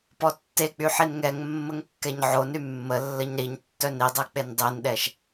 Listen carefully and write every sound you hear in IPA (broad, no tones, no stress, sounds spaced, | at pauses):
p ɔ tː e k͡p y ħ i n ŋ ɛ ŋ mː ə ŋ kː ɛ ɲ ʕ o n y mː ə lː ə ɲ ɾ i ɲ tː œ n i dˤ e k͡p e n dˤ i n ɗ ɛ ʃ